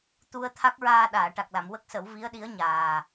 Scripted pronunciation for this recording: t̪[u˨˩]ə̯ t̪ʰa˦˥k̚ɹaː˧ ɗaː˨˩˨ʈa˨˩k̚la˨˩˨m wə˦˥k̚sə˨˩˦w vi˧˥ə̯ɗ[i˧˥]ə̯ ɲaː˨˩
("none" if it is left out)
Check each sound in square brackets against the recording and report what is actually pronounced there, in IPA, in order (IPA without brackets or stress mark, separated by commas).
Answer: u˧, i˧˥